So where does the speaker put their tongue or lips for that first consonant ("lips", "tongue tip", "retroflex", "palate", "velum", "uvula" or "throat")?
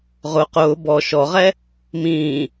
uvula